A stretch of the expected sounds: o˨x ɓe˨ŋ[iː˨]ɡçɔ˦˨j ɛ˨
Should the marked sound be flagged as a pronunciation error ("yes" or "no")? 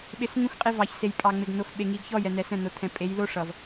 yes